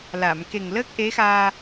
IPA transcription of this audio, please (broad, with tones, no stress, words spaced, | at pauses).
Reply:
la˨˩˨mke˨˩ŋ ləː˦˥k̚ʔe˧˥xaː˧